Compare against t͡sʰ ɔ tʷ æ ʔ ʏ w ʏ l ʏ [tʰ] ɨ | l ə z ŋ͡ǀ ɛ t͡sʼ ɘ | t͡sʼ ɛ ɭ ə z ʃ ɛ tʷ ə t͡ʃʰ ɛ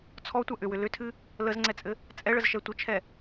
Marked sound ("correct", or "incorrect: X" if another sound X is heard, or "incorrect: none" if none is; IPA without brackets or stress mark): correct